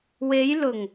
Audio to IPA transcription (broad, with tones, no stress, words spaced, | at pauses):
we˨˧jlʊ˨˩ŋ